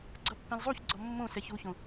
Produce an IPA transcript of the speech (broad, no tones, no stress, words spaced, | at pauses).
ɡ͡ǀʌpːɛ̃lzˤuçɡ͡ǀɔ mːõ sɛçuçõ